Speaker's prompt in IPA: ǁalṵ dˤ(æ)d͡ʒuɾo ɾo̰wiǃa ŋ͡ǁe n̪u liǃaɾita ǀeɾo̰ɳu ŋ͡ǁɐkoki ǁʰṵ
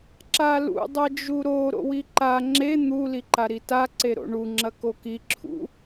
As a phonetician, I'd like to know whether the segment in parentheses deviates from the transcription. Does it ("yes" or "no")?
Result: yes